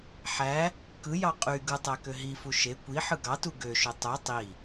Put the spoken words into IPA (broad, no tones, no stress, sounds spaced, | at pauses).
ħ æ | k ɯ j ɑ qʼ y ɡ ɯ tˤ æ k ø ɦ i f u ʃ e kʷ i ħ ɯ ɡ ɑ t u ɡ ø ʃ ø tˤ o tˤ i